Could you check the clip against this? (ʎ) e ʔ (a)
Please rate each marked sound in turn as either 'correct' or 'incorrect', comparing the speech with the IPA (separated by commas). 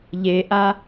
correct, correct